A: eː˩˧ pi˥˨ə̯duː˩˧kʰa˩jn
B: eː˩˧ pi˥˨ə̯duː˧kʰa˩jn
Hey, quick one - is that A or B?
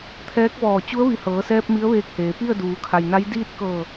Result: A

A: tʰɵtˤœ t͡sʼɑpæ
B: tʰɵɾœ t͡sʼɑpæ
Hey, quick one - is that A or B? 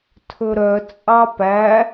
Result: B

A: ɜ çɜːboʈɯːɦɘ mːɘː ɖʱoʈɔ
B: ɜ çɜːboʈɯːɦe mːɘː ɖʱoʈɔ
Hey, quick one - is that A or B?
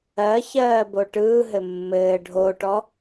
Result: A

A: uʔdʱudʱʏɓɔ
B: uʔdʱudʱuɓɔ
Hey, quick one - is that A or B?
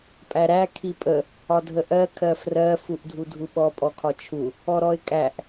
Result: B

